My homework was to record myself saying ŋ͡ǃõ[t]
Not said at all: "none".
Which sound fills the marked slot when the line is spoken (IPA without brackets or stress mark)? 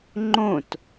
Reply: t